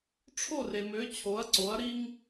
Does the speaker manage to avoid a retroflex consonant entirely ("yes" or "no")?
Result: no